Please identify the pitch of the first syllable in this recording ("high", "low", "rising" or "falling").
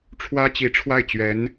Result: high